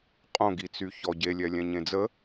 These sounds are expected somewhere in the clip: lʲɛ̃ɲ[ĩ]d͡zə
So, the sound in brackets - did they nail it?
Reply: no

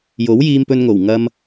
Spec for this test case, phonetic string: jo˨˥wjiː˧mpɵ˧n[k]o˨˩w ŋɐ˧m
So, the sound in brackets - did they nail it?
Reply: no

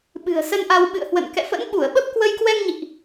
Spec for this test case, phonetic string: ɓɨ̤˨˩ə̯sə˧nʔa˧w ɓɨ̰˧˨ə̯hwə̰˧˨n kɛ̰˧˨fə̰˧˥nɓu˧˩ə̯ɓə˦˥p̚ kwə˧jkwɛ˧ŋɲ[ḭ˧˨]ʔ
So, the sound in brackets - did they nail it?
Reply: yes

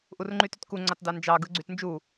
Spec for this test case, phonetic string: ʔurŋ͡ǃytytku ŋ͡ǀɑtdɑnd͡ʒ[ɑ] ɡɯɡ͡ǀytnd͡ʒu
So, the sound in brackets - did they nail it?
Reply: yes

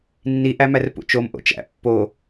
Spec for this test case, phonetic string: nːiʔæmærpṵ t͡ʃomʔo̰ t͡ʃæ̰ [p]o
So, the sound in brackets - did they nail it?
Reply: no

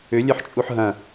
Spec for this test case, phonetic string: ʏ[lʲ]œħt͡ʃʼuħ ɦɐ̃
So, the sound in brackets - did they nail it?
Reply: yes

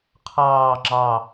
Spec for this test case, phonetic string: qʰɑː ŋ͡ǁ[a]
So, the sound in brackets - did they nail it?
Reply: no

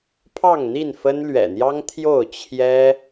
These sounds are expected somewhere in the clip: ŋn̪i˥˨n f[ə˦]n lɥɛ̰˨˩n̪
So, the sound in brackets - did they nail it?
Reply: yes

